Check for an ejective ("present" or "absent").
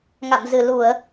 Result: absent